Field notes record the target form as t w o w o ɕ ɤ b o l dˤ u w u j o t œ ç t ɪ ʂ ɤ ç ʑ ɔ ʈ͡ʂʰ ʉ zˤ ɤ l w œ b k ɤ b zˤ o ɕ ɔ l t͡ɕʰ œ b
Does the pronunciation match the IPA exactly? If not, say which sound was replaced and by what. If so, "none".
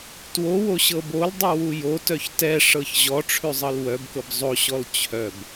ɪ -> ɛ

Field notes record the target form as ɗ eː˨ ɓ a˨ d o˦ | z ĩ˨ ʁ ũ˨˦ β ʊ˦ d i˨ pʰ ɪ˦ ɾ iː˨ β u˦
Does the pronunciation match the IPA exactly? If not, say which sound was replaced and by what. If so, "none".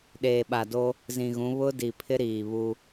ʁ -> ɣ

